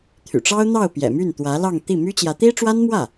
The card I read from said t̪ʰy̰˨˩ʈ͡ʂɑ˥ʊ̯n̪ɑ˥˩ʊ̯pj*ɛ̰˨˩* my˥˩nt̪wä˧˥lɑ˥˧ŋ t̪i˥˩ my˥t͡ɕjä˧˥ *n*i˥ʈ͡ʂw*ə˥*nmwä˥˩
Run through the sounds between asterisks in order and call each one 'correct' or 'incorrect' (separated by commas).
correct, incorrect, incorrect